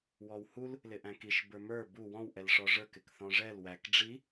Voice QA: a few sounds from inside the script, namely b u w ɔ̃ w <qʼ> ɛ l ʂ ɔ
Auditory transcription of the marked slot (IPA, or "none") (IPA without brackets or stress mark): ʔ